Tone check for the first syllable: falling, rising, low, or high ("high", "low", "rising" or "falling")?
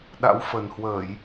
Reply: rising